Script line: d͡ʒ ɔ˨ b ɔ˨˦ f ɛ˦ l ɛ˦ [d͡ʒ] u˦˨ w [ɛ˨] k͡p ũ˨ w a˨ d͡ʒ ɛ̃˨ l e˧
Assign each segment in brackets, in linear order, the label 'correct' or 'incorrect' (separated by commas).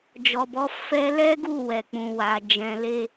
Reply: incorrect, correct